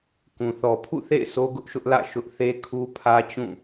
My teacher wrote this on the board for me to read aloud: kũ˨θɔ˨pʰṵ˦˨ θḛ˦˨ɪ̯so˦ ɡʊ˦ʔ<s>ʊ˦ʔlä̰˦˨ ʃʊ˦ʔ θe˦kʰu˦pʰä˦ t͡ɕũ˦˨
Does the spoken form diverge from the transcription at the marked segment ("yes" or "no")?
yes